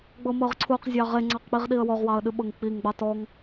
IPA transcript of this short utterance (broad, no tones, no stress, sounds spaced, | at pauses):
ɡ͡b ɤ m ɤ ʁ ǀʰ u q zʲ ɑ ʁ e ŋ͡ǀ ɑ q k͡p i ʁ ɗ i ə̯ w ɔ ʁ w ɑ ə̯ ɗ ɨ ɓ ɤ ŋ k͡p i ŋ ɡ͡b ɑ t ɔ ŋ